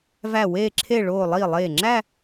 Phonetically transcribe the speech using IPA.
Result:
v æ˧˩ w eː˧˩ ǁʰ e˧˩ ɭ oː˧˩ lˠ iː˧˩ lˠ eː˧˩ ŋ͡ǁ æ˥˧

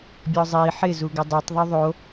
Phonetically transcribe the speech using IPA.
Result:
bʲ ɔ zˤ i ħ ɪ z u ɡ ɪ dˤ u tˤ ðˤ o ðˤ o

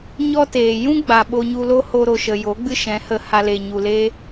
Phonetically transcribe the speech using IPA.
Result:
ɲ ɔ˦ t eː˨ j ũ˦ ɡ͡b a˨ ɓ o˧ ɲ u˧ l o˦ h o˧ ɾ o˨ ʃ ə˨ j o˨˦ ɡ͡b ɨ˦ ʃ ɛ̃˨˦ h ə˧ h a˧ l e˨ ɲ u˨ l e˦

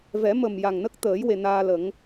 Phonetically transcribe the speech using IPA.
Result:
v ɛ˨˩˦ m ə˨˩ m j a˨˩ ŋ n ə˦˥ k̚ t̪ əː˨˩˦ j w e˨˩ n aː˧ l ə˨˩˦ ŋ

